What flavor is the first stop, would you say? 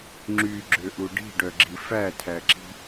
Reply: click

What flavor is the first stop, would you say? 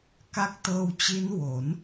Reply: plain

